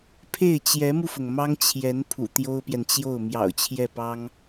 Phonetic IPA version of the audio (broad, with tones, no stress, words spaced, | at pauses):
pʰe˥˩ɪ̯t͡ɕjɛ˧˥mu˧fʊ˩ŋ mɑ˥ŋt͡ɕʰjɛ˧˥n pʰṵ˨˩t̪jo˥ʊ̯pjɛ˨nt͡ɕjo˥˩ʊ̯ mjɑ̰˨˩ʊ̯ t͡ɕʰjɛ˥˩pɑ˥ŋ